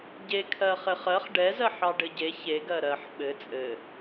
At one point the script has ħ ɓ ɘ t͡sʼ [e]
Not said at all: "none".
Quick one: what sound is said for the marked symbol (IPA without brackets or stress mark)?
ɘ